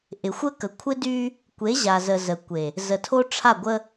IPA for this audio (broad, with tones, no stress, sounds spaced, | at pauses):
ʔ ɪ˨ xʷ ə˦ k ə˨ kʷʰ ɪ˦ d y˦ | kʷ e˨˦ ʑ a˨ z ə˨ z ə˨ kʷ e˨ | z ə˨ tʰ o˦ ʈ͡ʂʰ a˦˨ ɡʷ ə˦